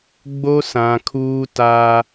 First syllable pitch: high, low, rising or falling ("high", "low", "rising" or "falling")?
high